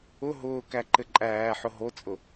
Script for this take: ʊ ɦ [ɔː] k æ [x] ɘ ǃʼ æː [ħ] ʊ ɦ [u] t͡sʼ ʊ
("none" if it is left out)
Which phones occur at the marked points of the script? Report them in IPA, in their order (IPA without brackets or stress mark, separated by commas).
ʊː, ǃ, ħ, o